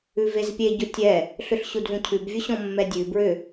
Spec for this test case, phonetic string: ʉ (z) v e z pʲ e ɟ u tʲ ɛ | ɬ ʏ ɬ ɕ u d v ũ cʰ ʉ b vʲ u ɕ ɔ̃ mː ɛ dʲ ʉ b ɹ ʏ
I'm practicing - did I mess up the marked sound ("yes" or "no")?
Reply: yes